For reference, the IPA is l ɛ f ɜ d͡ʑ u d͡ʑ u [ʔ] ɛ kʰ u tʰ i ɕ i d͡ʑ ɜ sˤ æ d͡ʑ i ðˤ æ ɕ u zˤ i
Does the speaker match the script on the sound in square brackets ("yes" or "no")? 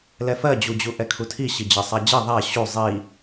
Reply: yes